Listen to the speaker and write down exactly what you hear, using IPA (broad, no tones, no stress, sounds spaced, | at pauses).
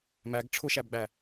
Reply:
m æ ɡ ʈ͡ʂʰ ʊ ʃ æ b ɡ͡b æ